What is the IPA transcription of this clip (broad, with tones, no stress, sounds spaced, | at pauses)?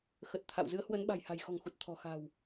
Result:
x ə˨˩ t̚ t̪ʰ a̰˧˨ w z ɨ˨˦ ə̯ h w ə˨˦ n ɓ a̤˨˩ j h a̤˨˩ j x ɔ̤˨˩ ŋ x u˨˩ t̚ t̪ʰ ɔ̤˨˩ x a̤˨˩ w